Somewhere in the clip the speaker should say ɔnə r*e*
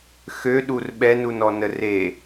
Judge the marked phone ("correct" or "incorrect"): correct